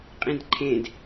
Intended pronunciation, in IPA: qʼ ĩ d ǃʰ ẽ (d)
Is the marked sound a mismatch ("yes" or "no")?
no